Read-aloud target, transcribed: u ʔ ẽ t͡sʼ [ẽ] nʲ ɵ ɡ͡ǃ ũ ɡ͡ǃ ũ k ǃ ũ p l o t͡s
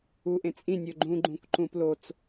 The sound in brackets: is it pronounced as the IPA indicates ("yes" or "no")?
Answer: no